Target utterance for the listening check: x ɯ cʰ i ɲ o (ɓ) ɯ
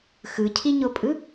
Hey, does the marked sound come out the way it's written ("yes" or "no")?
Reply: no